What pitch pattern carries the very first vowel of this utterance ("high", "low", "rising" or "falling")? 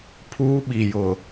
high